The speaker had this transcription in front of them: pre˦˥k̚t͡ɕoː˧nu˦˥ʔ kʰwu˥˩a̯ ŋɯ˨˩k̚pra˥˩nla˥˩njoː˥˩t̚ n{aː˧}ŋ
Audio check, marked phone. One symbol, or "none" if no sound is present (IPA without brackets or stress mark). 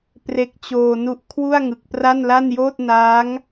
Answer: aː˦˥